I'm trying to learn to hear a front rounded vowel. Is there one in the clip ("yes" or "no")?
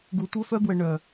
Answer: yes